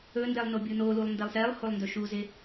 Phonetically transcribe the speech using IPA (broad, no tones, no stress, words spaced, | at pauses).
ɵndɛlˠ nobʲunolulˠ ndɛlˠsɛlˠholˠ ndɵʃuzɪ